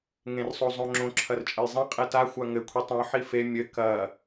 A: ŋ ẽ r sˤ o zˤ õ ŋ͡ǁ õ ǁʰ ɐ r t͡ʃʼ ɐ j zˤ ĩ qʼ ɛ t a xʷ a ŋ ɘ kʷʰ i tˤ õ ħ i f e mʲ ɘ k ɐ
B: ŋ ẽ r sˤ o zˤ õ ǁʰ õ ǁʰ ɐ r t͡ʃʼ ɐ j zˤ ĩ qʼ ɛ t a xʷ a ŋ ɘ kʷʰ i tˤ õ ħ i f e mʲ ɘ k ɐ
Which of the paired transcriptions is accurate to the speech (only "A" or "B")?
A